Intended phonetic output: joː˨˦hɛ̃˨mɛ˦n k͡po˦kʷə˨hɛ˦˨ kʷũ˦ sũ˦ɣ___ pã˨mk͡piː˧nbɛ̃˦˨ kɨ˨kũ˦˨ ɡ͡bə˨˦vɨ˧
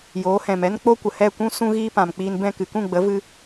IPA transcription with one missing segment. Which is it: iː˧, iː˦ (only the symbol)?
iː˦